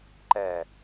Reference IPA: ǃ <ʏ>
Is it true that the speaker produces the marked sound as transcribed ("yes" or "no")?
no